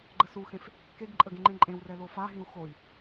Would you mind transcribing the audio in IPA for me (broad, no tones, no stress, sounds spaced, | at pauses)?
ɡ͡ǃ ə s u x ẽ f | k e ɡ ǃʼ ə ɡ ẽ ŋ͡ǃ ẽ ǃʼ ẽ w r ɛ l o f a ɦ ĩ u̯ x o i̯